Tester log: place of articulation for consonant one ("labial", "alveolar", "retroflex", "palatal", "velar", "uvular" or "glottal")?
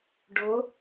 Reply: retroflex